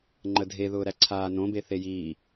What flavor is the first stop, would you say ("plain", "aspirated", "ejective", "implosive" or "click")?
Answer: click